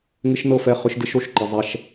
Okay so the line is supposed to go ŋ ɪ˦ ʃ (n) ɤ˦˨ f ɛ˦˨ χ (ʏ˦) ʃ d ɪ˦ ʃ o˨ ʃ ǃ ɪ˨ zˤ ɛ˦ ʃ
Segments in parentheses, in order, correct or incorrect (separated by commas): correct, correct